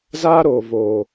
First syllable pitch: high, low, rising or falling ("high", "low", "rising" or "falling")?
high